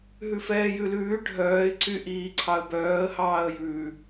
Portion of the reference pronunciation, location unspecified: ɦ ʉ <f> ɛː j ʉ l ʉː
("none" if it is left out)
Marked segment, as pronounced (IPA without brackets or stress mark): f